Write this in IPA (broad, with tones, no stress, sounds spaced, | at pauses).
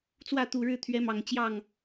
t͡s w ä˥˨ t̪ u˨˩ ɻ ɻ̩˥˨ t̪ʰ ɥ ɛ˨˦ m ɑ˨˩ ŋ t͡ɕ j ɑ˥˨ ŋ